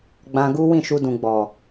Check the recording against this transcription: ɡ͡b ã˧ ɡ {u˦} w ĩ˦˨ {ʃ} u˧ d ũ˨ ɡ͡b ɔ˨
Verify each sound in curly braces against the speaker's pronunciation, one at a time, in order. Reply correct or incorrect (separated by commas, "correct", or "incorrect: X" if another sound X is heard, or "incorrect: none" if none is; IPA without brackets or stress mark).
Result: correct, correct